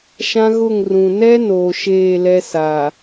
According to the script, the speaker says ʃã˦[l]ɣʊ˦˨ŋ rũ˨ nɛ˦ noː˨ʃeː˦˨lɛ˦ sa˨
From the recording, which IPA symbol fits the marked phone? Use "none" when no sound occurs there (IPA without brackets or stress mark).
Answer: none